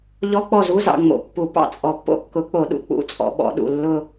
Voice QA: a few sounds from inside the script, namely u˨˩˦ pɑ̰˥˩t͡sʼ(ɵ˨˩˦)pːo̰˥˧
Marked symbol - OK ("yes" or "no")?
no